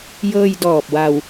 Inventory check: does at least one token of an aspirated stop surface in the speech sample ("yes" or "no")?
no